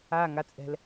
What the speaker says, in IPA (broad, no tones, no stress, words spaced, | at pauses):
a ŋat͡sʼɛ̤l